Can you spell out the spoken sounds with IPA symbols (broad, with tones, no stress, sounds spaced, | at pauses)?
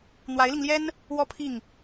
n̪ w a˧˥ ɪ̯ l i˧ ŋ l j ɛ˥ n | w ɔ˥˧ pʰ i˥˩ ŋ